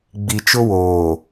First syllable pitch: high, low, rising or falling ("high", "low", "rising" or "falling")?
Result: low